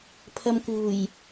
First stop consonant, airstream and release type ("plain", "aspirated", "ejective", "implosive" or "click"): aspirated